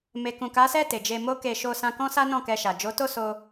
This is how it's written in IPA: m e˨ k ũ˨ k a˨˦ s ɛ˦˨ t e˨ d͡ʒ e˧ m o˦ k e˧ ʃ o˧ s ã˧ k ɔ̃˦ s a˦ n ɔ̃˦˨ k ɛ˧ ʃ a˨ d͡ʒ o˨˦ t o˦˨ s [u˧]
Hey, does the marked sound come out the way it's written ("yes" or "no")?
no